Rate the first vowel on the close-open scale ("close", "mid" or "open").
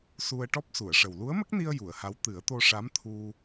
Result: close